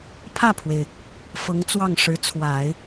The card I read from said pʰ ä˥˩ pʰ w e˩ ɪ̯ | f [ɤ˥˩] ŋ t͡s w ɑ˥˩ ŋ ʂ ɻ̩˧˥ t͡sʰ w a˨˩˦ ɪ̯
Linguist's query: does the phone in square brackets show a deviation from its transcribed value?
yes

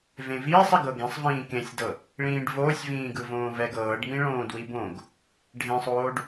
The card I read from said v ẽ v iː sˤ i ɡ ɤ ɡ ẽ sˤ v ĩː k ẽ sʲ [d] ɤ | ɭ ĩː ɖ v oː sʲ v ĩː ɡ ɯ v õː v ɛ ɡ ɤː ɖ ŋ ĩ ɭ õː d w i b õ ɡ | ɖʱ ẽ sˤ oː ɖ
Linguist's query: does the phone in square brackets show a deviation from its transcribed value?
no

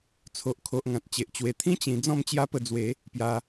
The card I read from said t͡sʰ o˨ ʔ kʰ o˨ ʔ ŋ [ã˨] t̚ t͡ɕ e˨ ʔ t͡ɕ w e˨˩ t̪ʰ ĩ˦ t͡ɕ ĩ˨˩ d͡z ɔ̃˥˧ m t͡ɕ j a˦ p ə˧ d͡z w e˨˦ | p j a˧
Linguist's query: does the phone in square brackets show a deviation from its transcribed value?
no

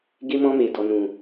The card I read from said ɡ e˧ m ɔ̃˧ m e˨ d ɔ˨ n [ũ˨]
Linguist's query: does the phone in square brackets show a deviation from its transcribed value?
no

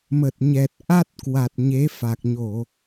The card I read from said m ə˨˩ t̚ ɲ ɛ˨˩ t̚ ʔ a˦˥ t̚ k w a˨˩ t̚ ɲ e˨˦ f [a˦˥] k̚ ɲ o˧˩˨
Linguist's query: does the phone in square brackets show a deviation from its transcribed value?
yes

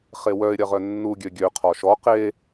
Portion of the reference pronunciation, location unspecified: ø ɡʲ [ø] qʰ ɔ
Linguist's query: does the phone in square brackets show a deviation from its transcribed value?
no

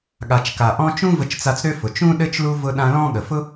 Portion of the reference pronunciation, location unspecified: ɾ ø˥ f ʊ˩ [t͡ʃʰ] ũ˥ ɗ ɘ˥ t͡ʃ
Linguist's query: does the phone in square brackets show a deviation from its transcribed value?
yes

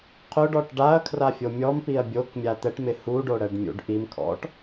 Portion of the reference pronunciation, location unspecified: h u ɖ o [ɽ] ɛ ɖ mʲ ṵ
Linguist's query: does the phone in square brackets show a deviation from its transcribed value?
no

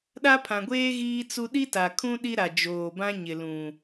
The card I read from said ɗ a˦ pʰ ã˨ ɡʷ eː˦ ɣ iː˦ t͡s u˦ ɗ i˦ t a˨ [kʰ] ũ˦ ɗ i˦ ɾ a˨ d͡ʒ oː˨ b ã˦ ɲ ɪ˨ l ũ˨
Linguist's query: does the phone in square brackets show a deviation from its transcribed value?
no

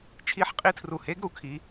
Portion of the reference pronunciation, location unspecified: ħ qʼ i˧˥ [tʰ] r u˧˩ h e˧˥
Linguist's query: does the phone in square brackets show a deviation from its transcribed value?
no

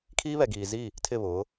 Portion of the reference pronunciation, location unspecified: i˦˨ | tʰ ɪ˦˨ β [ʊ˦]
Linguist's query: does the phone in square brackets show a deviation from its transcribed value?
yes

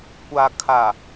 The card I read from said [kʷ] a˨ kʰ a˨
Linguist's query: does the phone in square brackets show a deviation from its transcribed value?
no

